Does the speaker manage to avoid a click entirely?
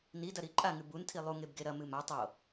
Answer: no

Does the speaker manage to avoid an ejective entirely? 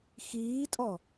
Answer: no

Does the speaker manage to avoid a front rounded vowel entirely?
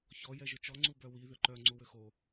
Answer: no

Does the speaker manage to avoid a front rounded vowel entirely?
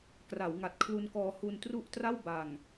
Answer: yes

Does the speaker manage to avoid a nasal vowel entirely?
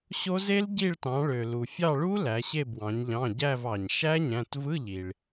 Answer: no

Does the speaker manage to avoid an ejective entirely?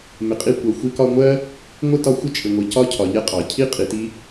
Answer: no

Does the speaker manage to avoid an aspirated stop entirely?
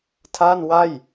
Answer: no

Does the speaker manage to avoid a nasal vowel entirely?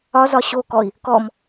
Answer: yes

